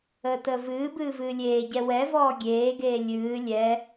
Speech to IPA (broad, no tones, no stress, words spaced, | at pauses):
əːtəːvɨːbɨː vɨːlʲeːɟɛ wɛvɔː ɡʲeːɡeː lʲɨː lʲɛ